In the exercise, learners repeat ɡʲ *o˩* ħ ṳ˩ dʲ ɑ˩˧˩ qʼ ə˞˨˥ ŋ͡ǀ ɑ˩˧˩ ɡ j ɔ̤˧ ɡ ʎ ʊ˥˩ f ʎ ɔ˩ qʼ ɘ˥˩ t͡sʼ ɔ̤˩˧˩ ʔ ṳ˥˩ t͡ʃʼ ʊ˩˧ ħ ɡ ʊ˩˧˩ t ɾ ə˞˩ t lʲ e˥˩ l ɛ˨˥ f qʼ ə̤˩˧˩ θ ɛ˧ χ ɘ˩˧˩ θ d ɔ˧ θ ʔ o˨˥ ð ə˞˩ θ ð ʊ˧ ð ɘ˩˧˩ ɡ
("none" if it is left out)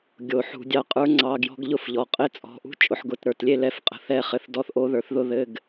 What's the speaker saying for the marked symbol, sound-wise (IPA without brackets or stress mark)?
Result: o˩